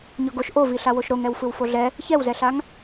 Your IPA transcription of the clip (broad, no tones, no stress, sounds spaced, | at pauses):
ɲ ɔ ɡ o ʃ ʔ o v i ɬ a w o ʃ ɾ o ŋ ɛ w f ɯ w f o ɮ ɛ | ç ɛ w z ɛ ɬ a ŋ